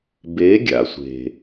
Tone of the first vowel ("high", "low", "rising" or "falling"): rising